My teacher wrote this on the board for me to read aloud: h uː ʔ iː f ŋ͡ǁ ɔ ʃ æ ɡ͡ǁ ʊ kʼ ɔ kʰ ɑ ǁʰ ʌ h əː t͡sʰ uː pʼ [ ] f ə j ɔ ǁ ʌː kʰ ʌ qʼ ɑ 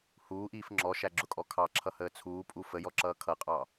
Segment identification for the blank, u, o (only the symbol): u